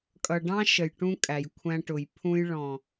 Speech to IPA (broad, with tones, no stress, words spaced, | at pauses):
kʼʌ˨ɖɑ̃˦ ʃə˨jʈũ˦ kʼæ˨jkʷʰæ̃˦ʈʊ˨j pʰũ˦jɭɔ̃˨